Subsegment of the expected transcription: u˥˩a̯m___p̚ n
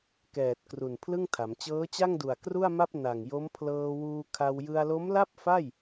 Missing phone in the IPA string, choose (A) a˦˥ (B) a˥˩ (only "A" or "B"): B